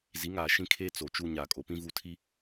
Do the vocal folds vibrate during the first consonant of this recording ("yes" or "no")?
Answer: yes